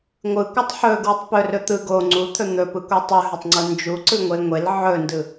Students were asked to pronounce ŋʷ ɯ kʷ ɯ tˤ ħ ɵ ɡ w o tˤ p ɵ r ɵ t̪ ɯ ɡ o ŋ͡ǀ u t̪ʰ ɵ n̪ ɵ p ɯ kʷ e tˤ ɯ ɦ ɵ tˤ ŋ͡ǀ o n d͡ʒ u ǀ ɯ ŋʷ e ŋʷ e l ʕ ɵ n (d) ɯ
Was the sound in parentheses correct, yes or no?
yes